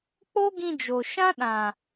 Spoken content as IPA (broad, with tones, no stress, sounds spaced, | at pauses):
k͡p o˦ ɡ ĩ˧ d͡ʒ o˨ ʃ ã˦ ɗ ã˨